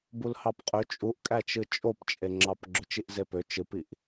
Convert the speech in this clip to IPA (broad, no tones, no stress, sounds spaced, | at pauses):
b u l h ɑ p qʼ ø t͡ʃʼ u ʔ kʼ æ t͡ʃ ɯ t͡ʃʼ o p t͡ʃʼ e ŋ͡ǁ ɑ p ɡ͡ǁ ø t͡ʃ i ʔ z e p ø t͡ʃ ɯ p i ʔ